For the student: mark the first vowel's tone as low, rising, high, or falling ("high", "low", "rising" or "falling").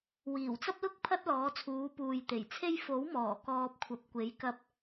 low